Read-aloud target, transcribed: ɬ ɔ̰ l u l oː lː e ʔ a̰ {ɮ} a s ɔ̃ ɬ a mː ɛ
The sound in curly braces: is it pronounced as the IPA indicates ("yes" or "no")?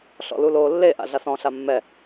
yes